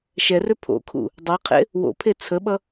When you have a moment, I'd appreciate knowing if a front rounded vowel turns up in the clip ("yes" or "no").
yes